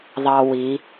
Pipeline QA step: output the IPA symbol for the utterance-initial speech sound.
ðˤ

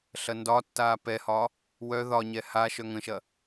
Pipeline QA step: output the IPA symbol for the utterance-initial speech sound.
ɬ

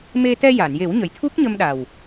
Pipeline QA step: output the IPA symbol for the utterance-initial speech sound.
m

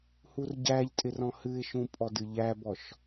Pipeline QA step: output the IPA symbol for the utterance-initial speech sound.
h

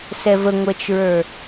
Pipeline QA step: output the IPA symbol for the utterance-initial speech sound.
s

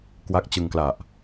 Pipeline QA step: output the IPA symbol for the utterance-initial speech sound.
k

